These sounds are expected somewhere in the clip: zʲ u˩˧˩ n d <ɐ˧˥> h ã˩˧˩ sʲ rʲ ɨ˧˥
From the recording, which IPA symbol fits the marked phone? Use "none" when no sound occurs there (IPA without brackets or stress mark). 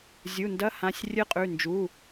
ɐ˧˥